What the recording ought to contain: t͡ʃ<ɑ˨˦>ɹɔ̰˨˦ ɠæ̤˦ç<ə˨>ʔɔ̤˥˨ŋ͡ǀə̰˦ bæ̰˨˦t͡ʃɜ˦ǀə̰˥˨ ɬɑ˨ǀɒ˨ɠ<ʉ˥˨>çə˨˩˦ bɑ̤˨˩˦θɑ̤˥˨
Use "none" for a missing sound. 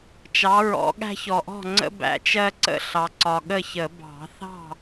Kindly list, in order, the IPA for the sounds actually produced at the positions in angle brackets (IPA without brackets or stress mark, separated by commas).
ɑ˨˦, ɔ˨, ə˥˨